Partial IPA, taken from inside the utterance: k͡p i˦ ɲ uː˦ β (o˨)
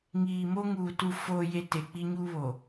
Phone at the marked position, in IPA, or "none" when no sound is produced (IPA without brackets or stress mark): o˨